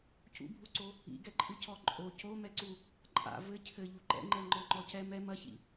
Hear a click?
yes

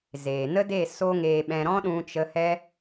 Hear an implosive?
yes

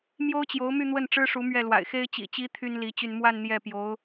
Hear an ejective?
no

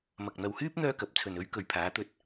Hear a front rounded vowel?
yes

